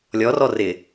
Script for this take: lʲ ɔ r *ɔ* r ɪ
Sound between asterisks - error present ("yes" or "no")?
no